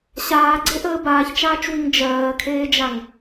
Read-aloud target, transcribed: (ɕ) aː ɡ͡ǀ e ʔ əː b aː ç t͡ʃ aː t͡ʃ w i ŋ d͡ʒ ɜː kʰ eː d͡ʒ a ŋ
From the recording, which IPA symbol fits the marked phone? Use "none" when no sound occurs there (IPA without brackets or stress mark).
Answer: ɕ